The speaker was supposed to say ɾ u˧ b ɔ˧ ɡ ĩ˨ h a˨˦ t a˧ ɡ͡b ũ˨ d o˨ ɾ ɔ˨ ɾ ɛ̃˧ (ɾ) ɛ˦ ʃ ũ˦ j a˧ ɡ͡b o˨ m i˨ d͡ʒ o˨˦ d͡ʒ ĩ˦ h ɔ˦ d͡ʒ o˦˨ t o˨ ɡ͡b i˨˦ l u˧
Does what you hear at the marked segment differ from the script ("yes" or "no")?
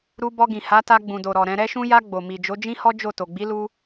no